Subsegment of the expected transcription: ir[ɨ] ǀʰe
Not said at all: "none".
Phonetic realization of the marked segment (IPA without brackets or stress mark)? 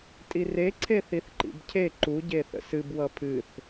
e